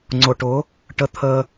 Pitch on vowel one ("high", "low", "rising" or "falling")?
low